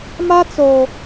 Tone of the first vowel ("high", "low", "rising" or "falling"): high